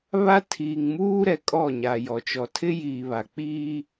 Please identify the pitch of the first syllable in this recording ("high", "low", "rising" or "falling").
high